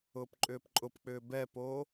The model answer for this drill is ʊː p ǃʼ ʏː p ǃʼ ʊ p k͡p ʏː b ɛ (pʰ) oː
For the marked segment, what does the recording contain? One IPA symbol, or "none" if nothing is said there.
p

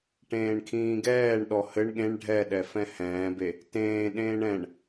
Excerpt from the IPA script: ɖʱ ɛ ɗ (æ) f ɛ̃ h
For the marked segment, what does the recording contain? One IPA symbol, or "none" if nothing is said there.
ɛ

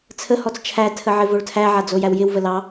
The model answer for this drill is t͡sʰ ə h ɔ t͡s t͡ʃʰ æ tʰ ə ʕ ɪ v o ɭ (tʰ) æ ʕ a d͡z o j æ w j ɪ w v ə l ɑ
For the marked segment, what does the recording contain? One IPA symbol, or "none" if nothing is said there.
tʰ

